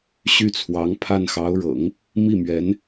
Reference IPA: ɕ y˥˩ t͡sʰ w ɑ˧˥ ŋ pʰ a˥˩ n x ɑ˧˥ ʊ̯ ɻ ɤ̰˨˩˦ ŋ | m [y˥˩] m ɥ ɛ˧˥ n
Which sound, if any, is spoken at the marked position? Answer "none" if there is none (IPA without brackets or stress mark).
i˥˩